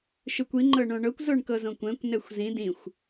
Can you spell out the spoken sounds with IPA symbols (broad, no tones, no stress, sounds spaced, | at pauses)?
ʃ ɯ kʷ i ŋ͡ǃ ɤ ɳ õ ɳ ɤ kʷ z o ɳ k ɤ z õ kʷ ɛ̃ kʷ n ɛ xʷ z ĩ d ĩ xʷ